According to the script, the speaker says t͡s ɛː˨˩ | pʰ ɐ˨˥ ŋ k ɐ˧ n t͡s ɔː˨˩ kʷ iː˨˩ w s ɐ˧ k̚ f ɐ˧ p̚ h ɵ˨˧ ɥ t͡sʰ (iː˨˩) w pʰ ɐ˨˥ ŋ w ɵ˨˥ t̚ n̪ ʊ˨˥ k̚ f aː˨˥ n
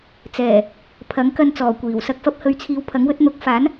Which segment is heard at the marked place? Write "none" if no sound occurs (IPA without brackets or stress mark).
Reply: iː˨